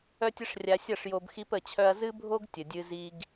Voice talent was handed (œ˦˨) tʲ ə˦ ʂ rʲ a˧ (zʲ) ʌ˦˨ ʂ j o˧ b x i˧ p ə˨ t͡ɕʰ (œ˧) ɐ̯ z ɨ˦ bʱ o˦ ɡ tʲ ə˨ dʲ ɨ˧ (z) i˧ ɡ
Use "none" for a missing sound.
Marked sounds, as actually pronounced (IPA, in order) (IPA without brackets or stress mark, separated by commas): œ˦, sʲ, œ˧, z